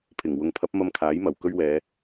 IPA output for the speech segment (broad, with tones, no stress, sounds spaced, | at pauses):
pʰ ɪ˨˩ ŋ w ʊ˨ ŋ pʰ ɐ˨˥ p̚ m ɐ˧ m kʰ aː˨˥ j m ɐ˨˩ w k ɵ˧ ɥ w ɛː˨˧